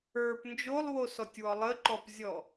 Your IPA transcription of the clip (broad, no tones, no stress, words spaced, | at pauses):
ə˞p nd͡ʒolˠwosɔtʲwɔ lˠəǃɔpzʲɔ